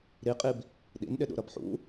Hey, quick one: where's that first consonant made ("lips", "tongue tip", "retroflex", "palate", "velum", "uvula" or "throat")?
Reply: tongue tip